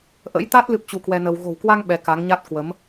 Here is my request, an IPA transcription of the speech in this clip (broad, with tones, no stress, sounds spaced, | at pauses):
ʔ ə̰˧˥ j t̪ a˦˥ t̚ l ɨ˦˥ p̚ t͡ɕ u˧ k w ɛ˧ n ə˧ w ɣ o̤˨˩ w k w a˧ ŋ ɓ ɛ˨˦ k a˨˦ ŋ ɲ a˦˥ t̚ k w ə˨˦ m